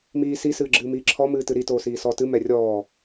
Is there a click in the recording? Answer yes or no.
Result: yes